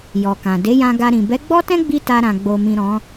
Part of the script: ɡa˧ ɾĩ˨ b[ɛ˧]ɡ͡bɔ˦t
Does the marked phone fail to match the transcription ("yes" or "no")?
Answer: yes